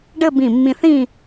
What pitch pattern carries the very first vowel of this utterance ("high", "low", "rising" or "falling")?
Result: falling